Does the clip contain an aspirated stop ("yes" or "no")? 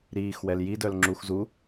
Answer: no